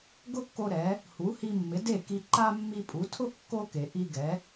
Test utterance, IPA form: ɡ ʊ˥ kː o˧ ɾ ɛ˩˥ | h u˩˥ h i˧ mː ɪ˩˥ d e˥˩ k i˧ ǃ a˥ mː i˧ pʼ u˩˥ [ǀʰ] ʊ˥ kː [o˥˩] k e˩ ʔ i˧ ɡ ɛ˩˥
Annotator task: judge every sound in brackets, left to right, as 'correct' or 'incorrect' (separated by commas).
incorrect, incorrect